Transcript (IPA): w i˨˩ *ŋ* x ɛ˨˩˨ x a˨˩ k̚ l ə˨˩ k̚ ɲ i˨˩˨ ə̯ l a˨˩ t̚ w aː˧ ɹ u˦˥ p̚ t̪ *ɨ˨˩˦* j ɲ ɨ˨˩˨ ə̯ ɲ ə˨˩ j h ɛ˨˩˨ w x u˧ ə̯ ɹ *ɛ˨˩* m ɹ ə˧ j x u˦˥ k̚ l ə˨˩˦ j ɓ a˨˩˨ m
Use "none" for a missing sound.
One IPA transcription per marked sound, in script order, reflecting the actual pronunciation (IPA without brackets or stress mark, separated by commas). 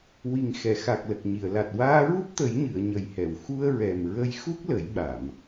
ŋ, ə˨˩˦, ɛ˨˩